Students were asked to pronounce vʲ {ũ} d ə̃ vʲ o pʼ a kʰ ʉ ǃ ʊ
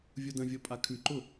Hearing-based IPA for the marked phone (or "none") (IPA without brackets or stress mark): u